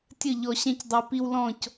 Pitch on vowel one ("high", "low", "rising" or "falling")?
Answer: falling